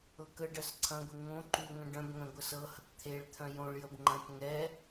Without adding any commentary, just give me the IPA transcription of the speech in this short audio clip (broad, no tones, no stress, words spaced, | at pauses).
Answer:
ɤkəɖɜs ǀʰɐ̃ɡʷe ŋõ ǃuŋœ̃ ɖœ̃bŋœ̃ ɡʷəsɤhɐkʷ t̪ʰeɭt̪ʰœ̃ jõɭjəb ŋ͡ǃɐ̃t ŋɛ